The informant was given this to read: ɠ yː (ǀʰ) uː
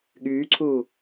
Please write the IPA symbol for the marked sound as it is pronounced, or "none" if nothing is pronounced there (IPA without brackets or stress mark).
ǀʰ